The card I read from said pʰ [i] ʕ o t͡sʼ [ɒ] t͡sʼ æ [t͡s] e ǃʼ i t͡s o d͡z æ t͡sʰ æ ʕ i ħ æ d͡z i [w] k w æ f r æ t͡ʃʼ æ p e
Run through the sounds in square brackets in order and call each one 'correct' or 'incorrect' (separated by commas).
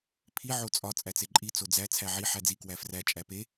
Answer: correct, correct, correct, incorrect